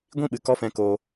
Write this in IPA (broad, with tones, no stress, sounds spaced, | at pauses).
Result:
ɡʷ ĩ˦˨ ɓ ɨ˨ k ɔ˦ f ɛ̃˧ k oː˧